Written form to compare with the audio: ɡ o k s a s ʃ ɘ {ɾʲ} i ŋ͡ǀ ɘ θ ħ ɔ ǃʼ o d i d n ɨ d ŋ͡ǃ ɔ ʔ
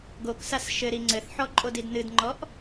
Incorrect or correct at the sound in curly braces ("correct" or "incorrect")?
incorrect